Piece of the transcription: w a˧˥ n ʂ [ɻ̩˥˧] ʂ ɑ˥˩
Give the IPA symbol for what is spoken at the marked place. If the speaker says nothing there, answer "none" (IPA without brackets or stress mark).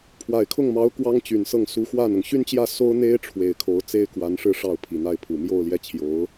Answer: ɻ̩˥˧